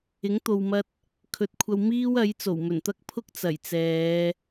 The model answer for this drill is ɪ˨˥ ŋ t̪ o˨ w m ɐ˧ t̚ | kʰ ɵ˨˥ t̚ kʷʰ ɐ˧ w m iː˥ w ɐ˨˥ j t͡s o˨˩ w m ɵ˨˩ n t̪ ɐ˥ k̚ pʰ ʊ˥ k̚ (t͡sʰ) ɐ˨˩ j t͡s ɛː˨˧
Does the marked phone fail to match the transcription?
yes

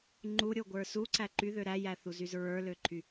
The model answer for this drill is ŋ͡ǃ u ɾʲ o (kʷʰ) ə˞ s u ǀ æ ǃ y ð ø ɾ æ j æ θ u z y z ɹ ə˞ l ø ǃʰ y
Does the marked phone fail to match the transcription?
yes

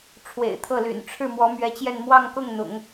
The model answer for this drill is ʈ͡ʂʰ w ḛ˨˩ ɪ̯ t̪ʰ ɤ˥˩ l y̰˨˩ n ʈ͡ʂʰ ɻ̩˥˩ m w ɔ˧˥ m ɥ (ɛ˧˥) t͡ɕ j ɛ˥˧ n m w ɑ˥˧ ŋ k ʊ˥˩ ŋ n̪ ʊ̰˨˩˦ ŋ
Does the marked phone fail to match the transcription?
no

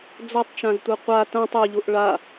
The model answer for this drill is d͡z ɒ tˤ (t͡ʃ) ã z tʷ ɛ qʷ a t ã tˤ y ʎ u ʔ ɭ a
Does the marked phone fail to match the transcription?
no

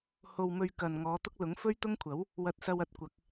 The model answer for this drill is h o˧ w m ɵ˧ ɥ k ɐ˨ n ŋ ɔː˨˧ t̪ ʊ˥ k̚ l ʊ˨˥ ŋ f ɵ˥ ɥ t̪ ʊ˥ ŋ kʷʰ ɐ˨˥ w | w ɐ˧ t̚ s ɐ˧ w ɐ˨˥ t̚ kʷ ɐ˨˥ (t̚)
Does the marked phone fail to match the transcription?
yes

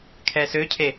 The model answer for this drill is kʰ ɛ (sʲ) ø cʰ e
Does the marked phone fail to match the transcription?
yes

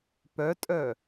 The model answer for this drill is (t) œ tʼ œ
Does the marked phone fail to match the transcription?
yes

